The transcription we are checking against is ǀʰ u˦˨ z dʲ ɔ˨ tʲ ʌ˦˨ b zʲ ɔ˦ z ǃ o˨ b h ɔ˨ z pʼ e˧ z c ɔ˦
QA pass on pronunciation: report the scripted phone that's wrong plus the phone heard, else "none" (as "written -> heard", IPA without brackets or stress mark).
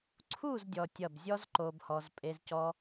none